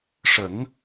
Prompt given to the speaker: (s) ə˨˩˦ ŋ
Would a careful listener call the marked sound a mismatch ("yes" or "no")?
yes